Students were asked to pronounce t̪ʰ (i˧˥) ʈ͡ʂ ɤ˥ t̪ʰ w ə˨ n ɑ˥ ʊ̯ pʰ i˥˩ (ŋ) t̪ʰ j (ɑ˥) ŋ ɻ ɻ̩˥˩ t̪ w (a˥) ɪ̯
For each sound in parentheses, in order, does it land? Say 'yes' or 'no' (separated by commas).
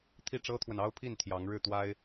no, no, no, yes